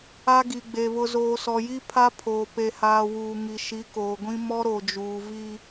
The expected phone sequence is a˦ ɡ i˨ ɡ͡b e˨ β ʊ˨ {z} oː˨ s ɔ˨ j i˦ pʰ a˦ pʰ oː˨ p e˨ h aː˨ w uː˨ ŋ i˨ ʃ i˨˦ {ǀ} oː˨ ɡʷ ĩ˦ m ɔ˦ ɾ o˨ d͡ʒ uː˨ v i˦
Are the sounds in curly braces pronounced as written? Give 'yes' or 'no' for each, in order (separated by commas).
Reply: yes, no